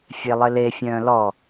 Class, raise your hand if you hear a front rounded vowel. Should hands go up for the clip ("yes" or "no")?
yes